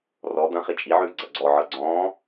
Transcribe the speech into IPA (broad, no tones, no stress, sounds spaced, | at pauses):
r ɔ d̪ ɐ̃ χ i t͡ʃʼ i ʕ ʉː ɡ͡ǀ ɐ ɡ͡ǀ ɔ ʕ ɤ ɡ͡ǀ ɔ̃ː